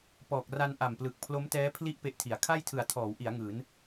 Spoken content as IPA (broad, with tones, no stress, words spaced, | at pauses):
pɔː˨˩k̚ ra˧n ʔa˨˩mplɯ˨˩k̚ pʰlo˦˥mtɛː˦˥ pʰli˥˩ʔ pe˦˥ʔtʰi˩˦a̯ kʰa˥˩jtʰɯ˨˩a̯ tʰɔː˩˦wʔi˩˦a̯ ŋɯː˩˦n